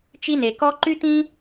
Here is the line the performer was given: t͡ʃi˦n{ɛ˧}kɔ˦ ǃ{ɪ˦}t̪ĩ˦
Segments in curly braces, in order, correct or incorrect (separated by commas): incorrect, incorrect